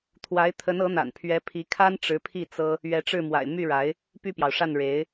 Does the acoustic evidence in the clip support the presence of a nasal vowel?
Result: no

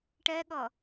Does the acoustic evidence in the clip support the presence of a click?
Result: no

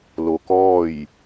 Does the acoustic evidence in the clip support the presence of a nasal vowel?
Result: no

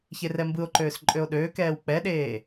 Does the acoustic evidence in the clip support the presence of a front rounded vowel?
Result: yes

